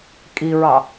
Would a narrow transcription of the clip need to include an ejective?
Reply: yes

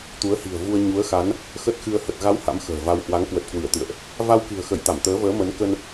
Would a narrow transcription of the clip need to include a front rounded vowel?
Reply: no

